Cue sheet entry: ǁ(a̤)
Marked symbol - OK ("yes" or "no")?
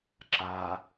no